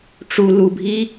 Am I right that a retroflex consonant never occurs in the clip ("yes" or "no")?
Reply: no